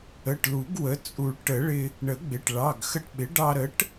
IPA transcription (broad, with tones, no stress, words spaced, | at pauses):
ə˩˧˩ʈlu˨˩˦ɡ wə˩˥ t͡sʼu˨˩˦ɭ ʈə˨˩˦ɭɪ˧ | ɳə˨˩˦ɡ͡bɪ˩˧˩ʈ ɭɑ˩˧˩ɡxə˧ʈɓɪ˩˥ ɖɑ˧ɾə˩˥ʈ